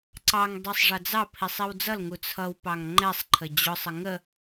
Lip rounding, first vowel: unrounded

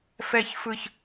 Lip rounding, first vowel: unrounded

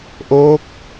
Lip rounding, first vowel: rounded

